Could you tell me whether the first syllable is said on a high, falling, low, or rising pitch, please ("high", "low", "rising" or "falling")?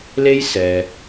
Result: high